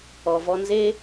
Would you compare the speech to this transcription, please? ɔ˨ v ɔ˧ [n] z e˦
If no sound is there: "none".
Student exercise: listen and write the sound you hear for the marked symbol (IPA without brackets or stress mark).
n